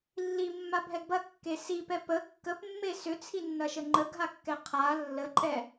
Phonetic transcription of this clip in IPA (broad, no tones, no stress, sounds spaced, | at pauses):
lː i mː a bʱ ɛ ɡ b ɐ kː e s i p ɛ p ə kː ə p mː e s ʏ t͡sʰ i nː ɐ ʃ ə ŋ͡ǃ ə ɡʱ a kː ɛ qʰ a lː ə ǃʼ ɛ